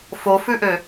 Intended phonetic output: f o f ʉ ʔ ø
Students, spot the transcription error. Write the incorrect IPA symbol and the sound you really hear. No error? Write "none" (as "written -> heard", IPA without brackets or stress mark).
none